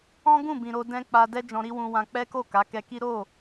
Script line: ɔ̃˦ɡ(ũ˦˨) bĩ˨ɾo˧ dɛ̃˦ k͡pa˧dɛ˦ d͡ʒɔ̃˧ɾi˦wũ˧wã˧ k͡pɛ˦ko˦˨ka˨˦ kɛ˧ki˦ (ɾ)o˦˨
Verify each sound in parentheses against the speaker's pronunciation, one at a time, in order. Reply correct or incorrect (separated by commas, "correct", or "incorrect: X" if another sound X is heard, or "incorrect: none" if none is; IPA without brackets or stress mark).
correct, correct